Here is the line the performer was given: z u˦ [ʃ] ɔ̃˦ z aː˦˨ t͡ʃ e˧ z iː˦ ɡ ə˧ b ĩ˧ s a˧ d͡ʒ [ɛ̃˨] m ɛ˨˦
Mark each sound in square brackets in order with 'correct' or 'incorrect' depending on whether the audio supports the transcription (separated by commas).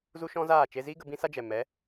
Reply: correct, incorrect